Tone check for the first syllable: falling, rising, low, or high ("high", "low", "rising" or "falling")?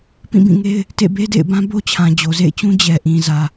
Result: falling